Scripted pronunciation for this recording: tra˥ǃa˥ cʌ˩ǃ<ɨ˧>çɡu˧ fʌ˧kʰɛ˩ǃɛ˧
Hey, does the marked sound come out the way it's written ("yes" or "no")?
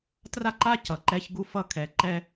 no